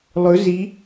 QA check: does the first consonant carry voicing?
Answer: yes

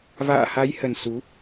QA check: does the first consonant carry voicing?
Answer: yes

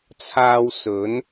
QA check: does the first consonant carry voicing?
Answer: no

